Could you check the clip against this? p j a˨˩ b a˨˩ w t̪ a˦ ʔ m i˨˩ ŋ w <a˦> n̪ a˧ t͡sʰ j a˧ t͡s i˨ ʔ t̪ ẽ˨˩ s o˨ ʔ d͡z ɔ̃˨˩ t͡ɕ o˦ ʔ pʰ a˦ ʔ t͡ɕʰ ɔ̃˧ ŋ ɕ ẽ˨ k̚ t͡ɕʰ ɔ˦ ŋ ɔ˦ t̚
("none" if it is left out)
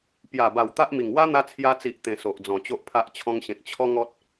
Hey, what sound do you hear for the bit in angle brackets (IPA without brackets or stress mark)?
a˦